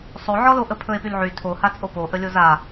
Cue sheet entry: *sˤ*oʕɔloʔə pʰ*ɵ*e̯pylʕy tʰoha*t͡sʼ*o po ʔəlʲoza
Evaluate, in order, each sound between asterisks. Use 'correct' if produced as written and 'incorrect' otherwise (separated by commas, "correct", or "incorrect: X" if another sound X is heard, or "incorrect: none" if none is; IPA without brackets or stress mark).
correct, correct, correct